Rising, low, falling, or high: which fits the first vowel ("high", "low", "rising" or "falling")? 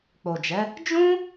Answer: low